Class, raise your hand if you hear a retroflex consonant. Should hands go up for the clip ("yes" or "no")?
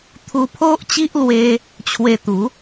no